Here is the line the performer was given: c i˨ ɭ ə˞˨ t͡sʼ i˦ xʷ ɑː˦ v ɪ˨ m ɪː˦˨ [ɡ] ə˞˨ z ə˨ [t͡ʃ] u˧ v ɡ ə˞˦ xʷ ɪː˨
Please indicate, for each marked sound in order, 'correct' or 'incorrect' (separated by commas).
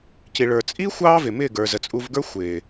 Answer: correct, incorrect